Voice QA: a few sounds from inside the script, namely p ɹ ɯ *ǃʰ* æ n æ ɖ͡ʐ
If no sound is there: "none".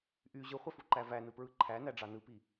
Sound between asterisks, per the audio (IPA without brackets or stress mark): ǃʰ